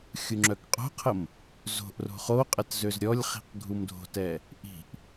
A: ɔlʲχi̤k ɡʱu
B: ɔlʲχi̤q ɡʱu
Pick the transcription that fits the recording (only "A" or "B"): B